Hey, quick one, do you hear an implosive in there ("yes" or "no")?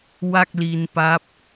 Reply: no